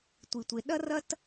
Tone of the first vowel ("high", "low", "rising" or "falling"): low